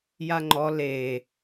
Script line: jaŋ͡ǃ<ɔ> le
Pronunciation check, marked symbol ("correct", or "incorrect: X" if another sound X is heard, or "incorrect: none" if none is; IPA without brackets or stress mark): correct